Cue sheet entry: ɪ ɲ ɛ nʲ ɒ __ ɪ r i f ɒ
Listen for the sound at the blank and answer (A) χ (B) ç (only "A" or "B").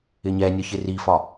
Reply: B